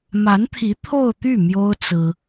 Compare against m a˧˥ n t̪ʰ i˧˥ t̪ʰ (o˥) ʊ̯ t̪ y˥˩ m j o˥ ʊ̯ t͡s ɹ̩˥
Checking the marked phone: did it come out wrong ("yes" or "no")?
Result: yes